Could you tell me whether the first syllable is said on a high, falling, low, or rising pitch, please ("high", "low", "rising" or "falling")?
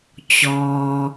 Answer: low